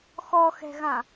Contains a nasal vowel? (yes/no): yes